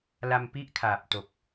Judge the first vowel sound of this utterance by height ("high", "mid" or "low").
low